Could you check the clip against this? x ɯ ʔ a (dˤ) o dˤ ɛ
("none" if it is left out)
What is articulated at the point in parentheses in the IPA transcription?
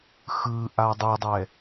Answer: dˤ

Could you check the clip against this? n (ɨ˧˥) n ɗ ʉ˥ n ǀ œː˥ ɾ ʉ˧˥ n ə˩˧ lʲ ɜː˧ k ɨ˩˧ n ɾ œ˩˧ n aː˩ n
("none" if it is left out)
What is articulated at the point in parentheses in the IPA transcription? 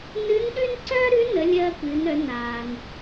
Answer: ɨ˧˥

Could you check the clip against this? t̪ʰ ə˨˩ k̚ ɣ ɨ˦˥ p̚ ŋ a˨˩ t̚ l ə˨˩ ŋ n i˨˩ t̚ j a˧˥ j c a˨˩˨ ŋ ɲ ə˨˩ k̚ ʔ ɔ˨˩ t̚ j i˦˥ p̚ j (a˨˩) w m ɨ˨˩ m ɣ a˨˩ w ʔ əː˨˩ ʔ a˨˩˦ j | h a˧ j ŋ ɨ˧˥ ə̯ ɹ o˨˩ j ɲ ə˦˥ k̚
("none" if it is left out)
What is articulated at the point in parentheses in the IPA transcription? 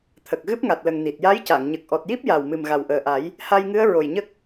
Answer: a˨˩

